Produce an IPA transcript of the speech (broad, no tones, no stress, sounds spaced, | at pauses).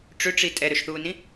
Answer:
ʈ͡ʂ ø ʈ͡ʂ i tʼ ɛ ɾ ø ʃ θ uː n ĩ